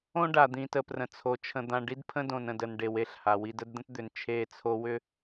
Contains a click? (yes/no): no